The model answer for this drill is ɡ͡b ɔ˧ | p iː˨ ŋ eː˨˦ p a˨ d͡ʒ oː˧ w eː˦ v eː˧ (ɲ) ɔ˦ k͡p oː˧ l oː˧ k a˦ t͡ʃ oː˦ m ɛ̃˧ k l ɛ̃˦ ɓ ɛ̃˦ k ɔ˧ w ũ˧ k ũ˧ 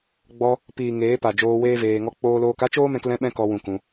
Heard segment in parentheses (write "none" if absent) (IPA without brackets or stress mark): ŋ